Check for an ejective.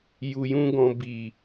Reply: absent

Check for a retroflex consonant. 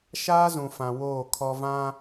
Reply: absent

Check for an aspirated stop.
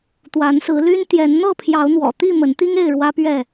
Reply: present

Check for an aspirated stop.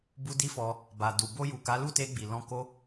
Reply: absent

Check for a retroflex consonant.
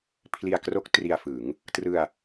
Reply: absent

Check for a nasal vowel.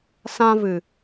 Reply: present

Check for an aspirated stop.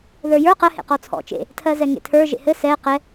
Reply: present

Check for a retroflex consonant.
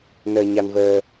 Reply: absent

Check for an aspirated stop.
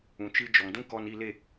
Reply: absent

